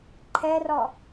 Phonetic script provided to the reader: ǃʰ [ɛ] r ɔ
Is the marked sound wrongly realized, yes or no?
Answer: no